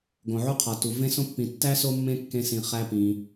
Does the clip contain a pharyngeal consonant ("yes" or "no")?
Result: yes